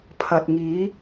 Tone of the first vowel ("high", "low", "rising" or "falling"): low